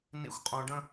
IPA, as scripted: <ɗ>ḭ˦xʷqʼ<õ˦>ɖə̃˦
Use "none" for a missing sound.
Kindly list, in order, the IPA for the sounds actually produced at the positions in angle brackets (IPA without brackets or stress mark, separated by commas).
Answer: n, õ˦